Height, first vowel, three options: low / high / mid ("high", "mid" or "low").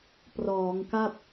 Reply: mid